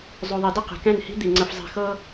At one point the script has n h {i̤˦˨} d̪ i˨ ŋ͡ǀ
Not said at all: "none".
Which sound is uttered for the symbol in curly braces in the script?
i̤˦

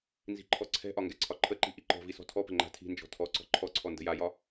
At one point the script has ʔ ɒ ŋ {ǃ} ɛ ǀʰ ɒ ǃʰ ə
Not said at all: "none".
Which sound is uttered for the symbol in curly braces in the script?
ɡ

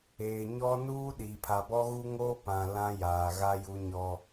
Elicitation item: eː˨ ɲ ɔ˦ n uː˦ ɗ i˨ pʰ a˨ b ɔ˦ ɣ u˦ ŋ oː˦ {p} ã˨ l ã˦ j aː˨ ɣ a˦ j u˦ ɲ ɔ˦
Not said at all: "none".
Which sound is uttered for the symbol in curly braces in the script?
p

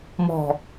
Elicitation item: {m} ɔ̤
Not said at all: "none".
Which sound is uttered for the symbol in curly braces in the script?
m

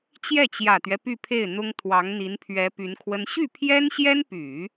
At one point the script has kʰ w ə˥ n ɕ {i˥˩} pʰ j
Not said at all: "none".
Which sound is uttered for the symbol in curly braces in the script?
y˥˩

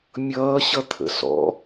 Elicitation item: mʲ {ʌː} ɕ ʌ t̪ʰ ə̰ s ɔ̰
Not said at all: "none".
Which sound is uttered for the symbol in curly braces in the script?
ʌː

